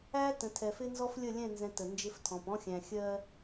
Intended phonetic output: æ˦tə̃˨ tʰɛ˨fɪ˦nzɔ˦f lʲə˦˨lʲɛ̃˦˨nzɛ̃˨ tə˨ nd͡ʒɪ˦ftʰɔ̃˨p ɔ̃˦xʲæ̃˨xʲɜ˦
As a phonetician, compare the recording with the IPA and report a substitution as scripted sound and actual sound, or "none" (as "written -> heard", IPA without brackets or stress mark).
none